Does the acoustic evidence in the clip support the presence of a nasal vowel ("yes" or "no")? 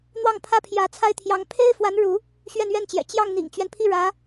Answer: no